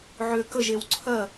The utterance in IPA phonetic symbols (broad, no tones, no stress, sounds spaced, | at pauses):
ʕ ø k ə ʒ e w ǀʰ ɜ